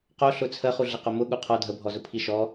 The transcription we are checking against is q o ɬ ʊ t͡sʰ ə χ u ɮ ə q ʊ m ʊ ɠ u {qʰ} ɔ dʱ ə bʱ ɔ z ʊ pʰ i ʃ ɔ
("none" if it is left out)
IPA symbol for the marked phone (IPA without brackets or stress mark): qʰ